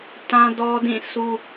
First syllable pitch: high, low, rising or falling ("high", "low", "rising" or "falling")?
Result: high